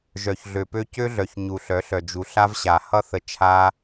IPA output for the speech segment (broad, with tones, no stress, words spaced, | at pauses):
ʒœ˨çɮø˨pø˦ cø˦ɮœ˨ç ɲu˨ɬœ˨˦ɬœ˨ d͡ʒu˨ɬa˦vɕa˨ hʌ˦ θə˦ t͡ʃʰa˦